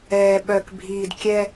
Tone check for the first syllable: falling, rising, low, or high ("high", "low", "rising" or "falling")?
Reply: low